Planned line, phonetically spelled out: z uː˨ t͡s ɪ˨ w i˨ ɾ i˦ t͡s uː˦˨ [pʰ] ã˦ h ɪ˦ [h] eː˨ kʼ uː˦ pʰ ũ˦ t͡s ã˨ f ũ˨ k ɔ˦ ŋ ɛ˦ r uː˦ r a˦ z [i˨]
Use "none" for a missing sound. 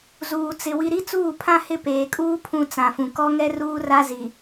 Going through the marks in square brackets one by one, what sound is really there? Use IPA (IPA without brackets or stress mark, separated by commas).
pʰ, p, i˨